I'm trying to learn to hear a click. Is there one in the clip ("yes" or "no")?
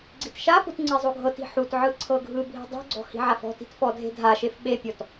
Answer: yes